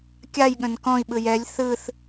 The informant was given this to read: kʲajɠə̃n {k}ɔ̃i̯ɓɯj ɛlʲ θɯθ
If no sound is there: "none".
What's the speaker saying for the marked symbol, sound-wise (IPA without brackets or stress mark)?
k